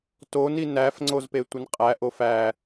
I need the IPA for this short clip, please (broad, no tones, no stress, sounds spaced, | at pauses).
t o n i n æ f ŋ͡ǀ o z p e tʷ i n qʼ æ ʔ o f æ